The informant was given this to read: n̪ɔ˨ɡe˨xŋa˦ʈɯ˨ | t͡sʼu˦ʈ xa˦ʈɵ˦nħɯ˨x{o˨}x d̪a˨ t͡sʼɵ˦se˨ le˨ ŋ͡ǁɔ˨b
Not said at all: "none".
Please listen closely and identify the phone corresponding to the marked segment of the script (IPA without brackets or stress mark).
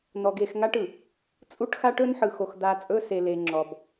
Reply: o˨